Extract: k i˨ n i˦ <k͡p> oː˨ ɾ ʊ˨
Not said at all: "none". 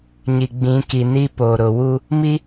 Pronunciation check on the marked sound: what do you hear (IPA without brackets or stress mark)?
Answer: p